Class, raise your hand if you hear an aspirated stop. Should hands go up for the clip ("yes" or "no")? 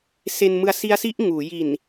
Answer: no